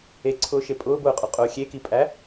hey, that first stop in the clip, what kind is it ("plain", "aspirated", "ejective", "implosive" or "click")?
click